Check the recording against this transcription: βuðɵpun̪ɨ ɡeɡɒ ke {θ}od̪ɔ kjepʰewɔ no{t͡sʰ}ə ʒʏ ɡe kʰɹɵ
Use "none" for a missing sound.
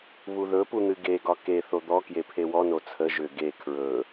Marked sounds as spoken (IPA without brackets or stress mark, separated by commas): θ, t͡sʰ